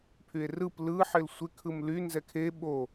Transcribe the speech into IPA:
pʰ y e̯ r ɯ p l ɯ ħ ɪ l sʷ ɪ kʰ ɯ m l y n z ɛ kʰ e ɓ o

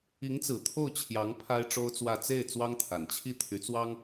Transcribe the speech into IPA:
i˧˥ ŋ t͡s ɹ̩˨˩ t̪ʰ o˥˩ ʊ̯ t͡ɕʰ j ɑ˧˥ ŋ pʰ a˥ ɪ̯ ʈ͡ʂ o˥ ʊ̯ t͡s w ä˥˧ t͡s e˥˩ ɪ̯ t͡s w ɑ˥ ŋ t̪ʰ a˨˩ n t͡ɕʰ i˥˩ t̪ʰ y˧˥ t͡s w ɑ˥ ŋ

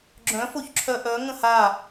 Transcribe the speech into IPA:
ɡ͡ǁ œ̃ f o ç ǁʰ œ ʔ œ ŋ ə̃ h a

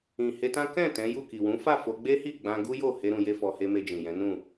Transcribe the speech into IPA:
ĩ˨ h e˧ t ã˦ k ɛ̃˦˨ t ɛ̃˨˦ j u˦˨ k i˨ w ũ˨˦ f a˦˨ f o˧ ɡ͡b e˦ h i˦˨ ɡ͡b ã˧ ɡ u˦ j o˦˨ h e˧ ɾ ũ˧ j e˦ f ɔ˧ h e˦ m e˧ d͡ʒ ĩ˨ j ɛ̃˨˦ n ũ˦˨

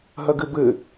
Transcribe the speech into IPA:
ɦ ɐ ɡ ɘ b ɘ

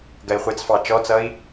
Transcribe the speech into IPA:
ɡ ɜ i̯ χʷ ɪ t͡s f ɑ t͡ʃ ɔ t͡s ʌ i̯

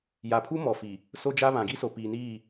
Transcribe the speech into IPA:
j a˨ pʰ u˦ m ɔ˨ f i˨ | s o˦ d͡ʒ a˦ β ã˨ ɡ i˦ s o˨ p iː˨ n iː˦˨

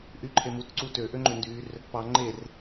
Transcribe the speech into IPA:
ʔ y ǃʰ e m u t ǀ u t ø ʔ ø ŋ͡ǃ ø n d y r | p ɑ ŋ͡ǃ e r

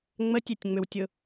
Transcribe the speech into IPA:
ŋ͡m ə tʲ e tʲ ŋ͡m ʏ w tʲ ʊ

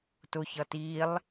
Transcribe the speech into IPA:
t ʊ ç ʌ t i lˠ

